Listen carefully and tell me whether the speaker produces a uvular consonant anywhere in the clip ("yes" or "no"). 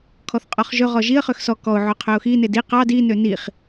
yes